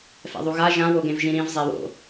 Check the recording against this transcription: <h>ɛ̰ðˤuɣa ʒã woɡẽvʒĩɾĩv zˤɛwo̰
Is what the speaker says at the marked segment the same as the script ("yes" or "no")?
no